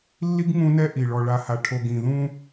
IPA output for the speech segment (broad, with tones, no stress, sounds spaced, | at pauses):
lː i˦ ɡ ŋ ũ˦ n ɛ˦ ʔ i˨ ɭ ɔ˨ ɭ a˨ h a˨ ʈʰ o˨ ɡ ĩ˨ ð ũ˦